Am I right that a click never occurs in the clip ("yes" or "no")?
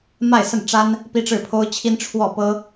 yes